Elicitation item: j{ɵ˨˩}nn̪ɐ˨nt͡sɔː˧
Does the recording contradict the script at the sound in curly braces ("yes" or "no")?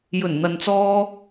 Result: no